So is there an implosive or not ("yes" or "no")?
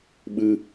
yes